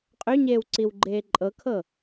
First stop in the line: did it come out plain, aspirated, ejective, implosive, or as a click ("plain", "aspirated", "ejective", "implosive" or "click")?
ejective